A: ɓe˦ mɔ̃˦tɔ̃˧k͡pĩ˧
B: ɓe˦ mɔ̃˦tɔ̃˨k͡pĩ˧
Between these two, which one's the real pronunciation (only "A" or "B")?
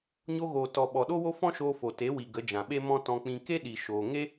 A